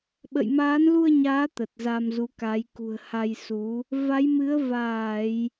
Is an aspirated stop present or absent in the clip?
absent